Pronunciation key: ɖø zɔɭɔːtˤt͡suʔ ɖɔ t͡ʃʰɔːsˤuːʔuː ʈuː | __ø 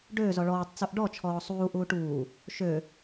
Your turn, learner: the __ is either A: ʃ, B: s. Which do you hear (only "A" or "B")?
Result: A